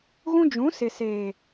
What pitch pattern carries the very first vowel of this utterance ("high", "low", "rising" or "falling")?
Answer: high